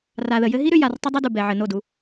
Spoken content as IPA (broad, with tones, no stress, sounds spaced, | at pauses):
r a˨ ð ə˨ j ɘ˧ ɦ i˦ ɾ ʏ˧ j a˨ r tˤ ə˦ dˤ ɘ˦ d u˨ b ɛ˨ ʕ ɘ˨ n o˦˨ d u˧